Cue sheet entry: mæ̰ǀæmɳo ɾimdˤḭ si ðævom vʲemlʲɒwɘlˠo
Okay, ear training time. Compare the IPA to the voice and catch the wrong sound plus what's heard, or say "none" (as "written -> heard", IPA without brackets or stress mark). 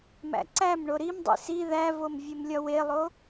ɘ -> e